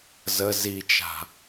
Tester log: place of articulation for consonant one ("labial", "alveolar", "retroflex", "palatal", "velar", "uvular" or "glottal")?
alveolar